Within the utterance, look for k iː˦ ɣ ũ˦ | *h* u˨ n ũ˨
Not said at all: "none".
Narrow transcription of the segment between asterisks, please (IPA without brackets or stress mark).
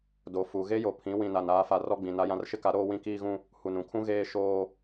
h